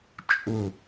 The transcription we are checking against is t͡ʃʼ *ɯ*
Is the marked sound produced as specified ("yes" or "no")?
no